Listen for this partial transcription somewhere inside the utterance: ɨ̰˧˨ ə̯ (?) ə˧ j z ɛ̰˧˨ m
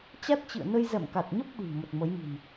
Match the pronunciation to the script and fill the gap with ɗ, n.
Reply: n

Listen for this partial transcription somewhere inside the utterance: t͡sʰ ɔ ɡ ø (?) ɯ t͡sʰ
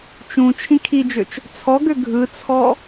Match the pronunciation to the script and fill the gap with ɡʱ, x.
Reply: ɡʱ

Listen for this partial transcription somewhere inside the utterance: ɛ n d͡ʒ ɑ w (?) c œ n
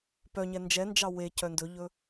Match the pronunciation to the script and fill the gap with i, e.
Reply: e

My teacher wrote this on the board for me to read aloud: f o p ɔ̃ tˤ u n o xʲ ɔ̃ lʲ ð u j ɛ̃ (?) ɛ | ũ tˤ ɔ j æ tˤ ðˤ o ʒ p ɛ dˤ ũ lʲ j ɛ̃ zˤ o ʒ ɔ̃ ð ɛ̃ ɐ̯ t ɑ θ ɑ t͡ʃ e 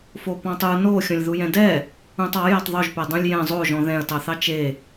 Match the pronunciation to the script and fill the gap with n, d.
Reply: d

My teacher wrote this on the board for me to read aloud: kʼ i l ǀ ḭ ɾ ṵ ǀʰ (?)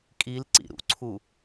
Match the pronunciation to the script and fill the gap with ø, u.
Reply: u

